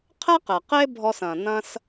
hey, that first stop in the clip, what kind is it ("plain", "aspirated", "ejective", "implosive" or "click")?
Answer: aspirated